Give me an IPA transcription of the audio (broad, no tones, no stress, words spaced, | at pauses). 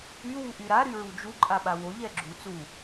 y wuʔyɾa ɾyɹud͡ʒu ǃʼaɓawo ʎɛɡ͡ǁu t͡su